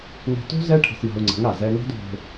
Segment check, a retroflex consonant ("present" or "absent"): present